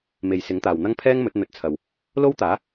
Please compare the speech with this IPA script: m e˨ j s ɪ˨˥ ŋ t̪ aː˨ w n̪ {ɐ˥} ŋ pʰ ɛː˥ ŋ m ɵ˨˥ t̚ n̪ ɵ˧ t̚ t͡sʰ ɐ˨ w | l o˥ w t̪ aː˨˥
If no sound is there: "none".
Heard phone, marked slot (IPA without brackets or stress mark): ɐ˥